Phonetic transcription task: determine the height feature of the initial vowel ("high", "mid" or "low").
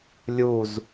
high